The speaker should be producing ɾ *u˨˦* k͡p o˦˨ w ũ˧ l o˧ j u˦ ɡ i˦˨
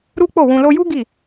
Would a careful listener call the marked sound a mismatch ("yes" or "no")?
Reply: yes